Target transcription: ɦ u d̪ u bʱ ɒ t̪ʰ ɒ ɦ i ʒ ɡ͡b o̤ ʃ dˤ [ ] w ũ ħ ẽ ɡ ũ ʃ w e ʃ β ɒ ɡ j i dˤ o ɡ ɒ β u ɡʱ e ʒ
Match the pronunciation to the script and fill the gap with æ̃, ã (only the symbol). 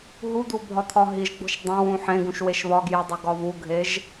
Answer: æ̃